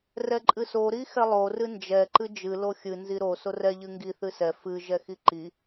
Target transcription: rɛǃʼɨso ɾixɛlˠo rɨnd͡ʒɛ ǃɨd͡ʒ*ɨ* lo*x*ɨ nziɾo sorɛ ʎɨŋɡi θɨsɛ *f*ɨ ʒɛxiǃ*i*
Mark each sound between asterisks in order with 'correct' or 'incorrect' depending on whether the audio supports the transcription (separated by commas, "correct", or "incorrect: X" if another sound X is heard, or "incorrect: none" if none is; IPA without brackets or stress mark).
correct, incorrect: xʲ, correct, correct